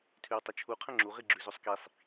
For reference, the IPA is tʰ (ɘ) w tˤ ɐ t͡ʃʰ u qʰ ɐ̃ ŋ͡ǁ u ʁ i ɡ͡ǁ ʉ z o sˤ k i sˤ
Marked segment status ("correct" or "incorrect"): incorrect